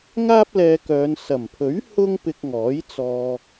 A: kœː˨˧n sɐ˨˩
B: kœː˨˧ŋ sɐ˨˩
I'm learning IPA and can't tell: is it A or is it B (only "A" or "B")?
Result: A